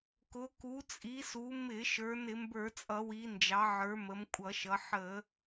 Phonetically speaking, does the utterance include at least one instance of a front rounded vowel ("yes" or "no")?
no